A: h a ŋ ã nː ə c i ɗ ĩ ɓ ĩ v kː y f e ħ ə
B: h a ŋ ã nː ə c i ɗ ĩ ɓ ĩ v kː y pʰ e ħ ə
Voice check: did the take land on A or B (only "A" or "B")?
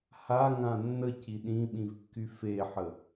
A